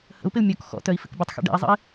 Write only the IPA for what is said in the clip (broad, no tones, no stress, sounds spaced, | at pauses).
h ə̰ u̯ p ɪ u̯ mʲ ɔ k x ɔ̰ t œ i̯ f ɪ k bʲ ə tˤ x ɛ̰ ɖ ɛ̰ i̯ zˤ ə̰ i̯